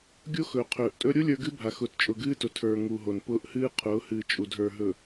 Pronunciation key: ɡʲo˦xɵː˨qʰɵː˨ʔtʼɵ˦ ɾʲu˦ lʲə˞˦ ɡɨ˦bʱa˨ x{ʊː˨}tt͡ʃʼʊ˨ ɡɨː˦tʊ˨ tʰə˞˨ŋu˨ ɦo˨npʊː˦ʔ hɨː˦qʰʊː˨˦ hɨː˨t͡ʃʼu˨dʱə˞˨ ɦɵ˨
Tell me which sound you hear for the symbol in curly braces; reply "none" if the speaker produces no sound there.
ʊː˨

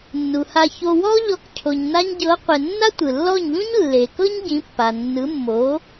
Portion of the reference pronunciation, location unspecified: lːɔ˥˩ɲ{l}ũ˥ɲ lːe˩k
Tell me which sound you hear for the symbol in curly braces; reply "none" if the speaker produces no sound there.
ʎ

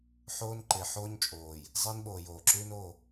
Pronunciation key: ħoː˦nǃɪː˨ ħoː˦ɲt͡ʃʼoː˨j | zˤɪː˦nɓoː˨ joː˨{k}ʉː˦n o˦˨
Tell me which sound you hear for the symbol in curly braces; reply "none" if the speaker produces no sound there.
ǁ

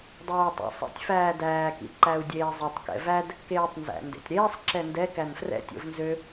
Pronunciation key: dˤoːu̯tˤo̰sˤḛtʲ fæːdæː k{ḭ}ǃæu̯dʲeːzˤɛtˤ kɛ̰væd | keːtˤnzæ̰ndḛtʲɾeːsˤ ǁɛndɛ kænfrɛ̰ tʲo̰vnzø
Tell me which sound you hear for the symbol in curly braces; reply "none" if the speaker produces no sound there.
ḭ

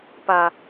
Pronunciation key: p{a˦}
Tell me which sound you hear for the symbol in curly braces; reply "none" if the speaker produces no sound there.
a˨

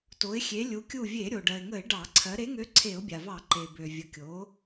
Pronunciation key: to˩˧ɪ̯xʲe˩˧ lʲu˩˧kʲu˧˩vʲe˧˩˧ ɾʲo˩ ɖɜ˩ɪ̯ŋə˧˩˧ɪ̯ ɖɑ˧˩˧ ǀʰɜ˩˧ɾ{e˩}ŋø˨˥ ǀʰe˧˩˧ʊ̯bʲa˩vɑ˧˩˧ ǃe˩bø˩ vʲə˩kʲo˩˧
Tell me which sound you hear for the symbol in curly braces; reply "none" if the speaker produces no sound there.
e˨˥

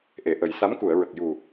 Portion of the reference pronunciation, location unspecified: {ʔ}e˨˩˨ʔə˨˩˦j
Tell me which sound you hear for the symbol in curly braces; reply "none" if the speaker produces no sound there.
ʔ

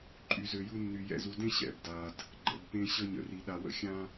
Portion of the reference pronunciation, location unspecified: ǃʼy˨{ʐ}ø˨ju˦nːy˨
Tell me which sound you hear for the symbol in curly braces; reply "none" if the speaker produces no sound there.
z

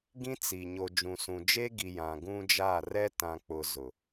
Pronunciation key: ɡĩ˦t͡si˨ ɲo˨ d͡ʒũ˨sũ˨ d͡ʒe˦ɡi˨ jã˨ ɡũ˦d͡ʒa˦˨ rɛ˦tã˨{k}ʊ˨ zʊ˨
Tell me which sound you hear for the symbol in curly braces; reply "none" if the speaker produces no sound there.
k͡p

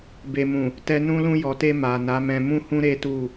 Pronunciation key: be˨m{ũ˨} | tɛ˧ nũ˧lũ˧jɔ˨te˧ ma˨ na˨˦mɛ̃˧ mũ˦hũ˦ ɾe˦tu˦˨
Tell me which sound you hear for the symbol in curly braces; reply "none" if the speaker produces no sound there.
ũ˨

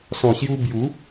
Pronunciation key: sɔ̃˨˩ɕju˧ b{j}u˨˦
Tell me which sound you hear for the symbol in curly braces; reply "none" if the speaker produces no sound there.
j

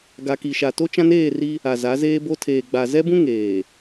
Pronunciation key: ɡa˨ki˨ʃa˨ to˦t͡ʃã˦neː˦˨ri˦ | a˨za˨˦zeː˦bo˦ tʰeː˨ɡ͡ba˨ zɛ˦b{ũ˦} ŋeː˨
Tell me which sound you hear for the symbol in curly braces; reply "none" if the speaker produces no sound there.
ũ˦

